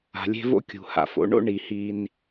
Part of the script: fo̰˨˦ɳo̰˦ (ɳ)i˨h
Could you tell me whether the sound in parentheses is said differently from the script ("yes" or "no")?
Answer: no